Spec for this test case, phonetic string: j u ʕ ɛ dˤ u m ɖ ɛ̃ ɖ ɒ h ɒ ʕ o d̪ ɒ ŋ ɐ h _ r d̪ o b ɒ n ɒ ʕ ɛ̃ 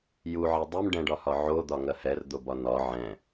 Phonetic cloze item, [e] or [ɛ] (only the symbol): ɛ